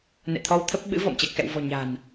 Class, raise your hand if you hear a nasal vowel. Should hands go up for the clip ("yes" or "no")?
no